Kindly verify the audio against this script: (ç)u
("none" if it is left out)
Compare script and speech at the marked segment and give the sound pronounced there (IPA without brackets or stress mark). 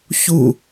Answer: ç